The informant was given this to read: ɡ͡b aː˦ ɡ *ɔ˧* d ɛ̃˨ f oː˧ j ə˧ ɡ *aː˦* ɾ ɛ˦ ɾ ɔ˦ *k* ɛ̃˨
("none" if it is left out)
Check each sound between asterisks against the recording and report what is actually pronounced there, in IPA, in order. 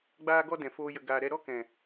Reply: ɔ˦, aː˧, k

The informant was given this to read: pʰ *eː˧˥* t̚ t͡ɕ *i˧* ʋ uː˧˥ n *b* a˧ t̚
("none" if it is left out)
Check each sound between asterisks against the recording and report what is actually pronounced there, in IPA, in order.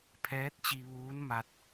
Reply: ɛː˧˥, i˧, m

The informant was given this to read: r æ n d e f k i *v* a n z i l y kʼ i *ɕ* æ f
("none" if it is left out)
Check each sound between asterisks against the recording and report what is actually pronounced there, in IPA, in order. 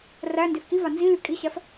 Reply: v, ɕ

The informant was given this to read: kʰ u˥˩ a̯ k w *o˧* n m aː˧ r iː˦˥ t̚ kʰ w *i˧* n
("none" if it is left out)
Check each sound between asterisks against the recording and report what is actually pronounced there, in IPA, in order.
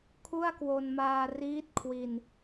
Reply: o˧, i˧

